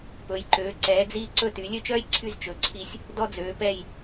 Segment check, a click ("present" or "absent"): present